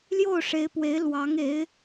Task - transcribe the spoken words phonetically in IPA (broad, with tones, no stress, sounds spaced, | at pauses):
l j o˥˩ ʊ̯ ʂ e˧˥ ɪ̯ p w e˧˥ ɪ̯ l w ɑ˧˥ ŋ e˧˥ ɪ̯